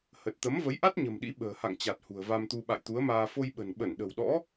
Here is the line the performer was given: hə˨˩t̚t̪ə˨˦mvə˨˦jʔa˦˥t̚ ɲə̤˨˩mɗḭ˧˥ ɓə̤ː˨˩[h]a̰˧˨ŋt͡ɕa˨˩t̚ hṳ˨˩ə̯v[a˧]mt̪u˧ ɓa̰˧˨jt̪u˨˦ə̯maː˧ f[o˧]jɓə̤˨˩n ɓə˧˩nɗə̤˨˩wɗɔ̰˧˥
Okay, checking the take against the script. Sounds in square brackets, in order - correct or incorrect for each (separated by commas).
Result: correct, correct, correct